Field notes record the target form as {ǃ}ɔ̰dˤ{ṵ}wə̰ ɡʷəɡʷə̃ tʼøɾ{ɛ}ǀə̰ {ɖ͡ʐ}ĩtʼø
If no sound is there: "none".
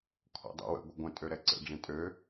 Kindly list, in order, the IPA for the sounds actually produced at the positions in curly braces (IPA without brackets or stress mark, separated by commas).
kʰ, ṵ, ɛ, ɖ͡ʐ